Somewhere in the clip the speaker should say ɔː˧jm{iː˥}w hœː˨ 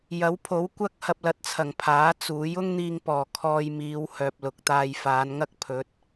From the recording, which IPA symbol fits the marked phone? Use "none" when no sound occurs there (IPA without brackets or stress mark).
iː˨˧